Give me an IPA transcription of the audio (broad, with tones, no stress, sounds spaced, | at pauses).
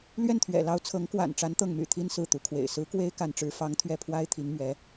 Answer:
l ɥ ɛ˥˩ n t̪ʰ ɥ ɛ̰˨˩ l ɑ˧˥ ʊ̯ t͡sʰ ɤ˧˥ ŋ k w a̰˨˩ n ʈ͡ʂ a˧˥ n t̪ ɤ˥˩ ŋ m y̰˨˩ t̪ʰ i˥ n s ɹ̩˥˩ t̪ u˧˥ kʰ w ḛ˨˩ ɪ̯ s ɹ̩˧˥ k w e˥ ɪ̯ k a˥˩ n ʈ͡ʂ ɻ̩˥ f ɑ˥ ŋ t̪ʰ ɥ ɛ˥˩ pʰ w a˥ ɪ̯ t̪ʰ i˧˥ ŋ m ɥ ɛ˧˥